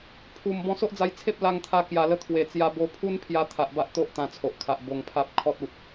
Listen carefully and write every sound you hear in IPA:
pʰu˨˩m bɔ̃˧so˦ʔd͡za˧jt͡sʰe˦p̚ la˧ŋt̪ʰa˧kja˨˩lə˧ t̪ʰwe˨˩ t͡sja˧ bo˧pʰu˦npʰja˧ t̪ʰa˨ʔba˦ʔ t̪o˦ʔ t̪ã˧t͡sʰo˨ʔkʰa˨ʔ bo˧ŋpʰa˦p̚ kʰɔ˦t̚u˨t̚

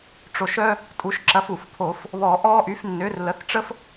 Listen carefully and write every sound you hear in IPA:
ʈ͡ʂo˧˩ʃœ˥ | tʼu˩˥ʃǁɐ˩˥f u˩fpʰo˧˩˧f | βɔ˧˩˧ʔɔː˥ʔy˩˥f nːʏː˩˥r lə˩˥θʈ͡ʂə˥f

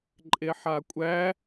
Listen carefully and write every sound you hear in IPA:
ǃʼeħakʷʼæ

